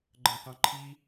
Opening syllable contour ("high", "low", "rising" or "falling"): high